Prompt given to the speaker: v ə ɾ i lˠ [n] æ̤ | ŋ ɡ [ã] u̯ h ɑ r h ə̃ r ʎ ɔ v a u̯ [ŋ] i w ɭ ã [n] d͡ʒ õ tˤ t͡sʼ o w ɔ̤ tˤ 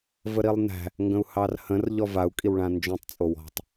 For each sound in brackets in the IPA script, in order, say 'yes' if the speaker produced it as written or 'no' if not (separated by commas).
yes, no, no, yes